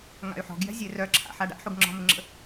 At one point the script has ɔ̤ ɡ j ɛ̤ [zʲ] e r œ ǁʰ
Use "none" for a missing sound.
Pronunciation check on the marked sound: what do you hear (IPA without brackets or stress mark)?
zʲ